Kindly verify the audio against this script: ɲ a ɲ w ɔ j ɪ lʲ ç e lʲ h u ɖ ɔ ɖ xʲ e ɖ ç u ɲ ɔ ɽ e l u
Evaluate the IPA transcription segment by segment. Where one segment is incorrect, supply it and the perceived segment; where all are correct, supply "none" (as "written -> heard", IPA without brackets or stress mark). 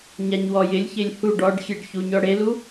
none